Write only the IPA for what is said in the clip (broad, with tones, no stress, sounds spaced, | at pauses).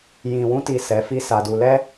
j ĩ˨ w ũ˧ t i˨ s ɛ˨˦ f i˦ s a˧ d u˧ l ɛ˦